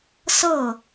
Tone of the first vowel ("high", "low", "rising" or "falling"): falling